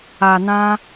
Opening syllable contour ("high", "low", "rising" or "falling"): low